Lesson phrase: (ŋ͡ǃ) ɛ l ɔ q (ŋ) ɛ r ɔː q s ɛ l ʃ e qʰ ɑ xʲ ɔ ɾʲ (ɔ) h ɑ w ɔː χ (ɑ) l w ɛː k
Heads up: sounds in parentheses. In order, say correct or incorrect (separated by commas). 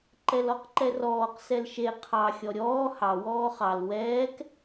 incorrect, incorrect, incorrect, correct